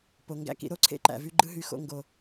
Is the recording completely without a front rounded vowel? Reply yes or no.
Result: no